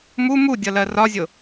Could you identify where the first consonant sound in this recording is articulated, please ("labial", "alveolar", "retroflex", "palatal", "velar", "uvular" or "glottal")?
labial